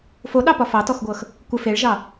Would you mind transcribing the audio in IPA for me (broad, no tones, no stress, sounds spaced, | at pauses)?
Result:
f o ɗ ɑ p ɒ f ɑ t ɔ x ɡʷ ɤ x | kʷ ɘ f e ɭ ʒ ɑ